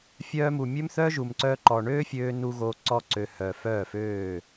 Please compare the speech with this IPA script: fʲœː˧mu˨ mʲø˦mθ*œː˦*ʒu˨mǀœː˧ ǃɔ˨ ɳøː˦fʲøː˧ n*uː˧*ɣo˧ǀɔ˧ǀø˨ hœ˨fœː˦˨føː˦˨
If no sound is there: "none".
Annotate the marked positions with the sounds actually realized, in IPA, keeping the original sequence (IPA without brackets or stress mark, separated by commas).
œː˦, u˧